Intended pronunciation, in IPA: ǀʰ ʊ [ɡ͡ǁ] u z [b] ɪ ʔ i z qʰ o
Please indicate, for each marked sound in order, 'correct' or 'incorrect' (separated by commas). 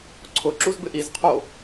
incorrect, correct